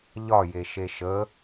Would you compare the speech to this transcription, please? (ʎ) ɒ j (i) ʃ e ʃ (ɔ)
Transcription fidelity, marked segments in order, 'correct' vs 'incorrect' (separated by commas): correct, incorrect, incorrect